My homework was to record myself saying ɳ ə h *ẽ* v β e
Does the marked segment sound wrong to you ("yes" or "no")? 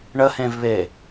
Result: no